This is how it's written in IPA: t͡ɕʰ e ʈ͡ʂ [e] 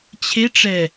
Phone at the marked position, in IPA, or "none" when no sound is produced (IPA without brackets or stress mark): ɛ